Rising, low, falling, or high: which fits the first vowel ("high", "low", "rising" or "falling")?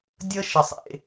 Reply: high